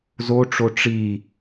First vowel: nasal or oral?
oral